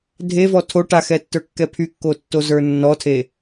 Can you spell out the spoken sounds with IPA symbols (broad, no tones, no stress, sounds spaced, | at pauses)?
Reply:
dʱ e v ɔ tʰ o ʈ a x ɛ tː ə˞ kː ɛ pʰ y kː o tː o z ə˞ nː ɔ tʰ e